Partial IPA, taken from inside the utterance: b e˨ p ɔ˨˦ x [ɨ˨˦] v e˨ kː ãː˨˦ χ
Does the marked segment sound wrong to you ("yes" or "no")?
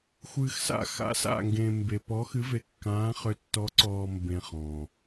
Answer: no